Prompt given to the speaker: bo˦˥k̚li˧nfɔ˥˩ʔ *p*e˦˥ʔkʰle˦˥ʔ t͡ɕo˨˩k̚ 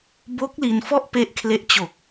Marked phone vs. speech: correct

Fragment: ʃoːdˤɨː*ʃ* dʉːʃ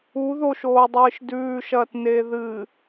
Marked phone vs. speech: correct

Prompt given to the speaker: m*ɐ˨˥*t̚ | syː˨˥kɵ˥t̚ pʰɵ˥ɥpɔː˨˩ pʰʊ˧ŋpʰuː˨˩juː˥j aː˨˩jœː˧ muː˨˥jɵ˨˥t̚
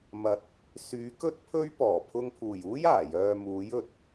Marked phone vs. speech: correct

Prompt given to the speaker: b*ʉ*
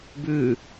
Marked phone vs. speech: correct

